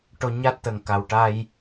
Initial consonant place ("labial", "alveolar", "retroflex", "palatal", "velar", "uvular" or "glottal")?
retroflex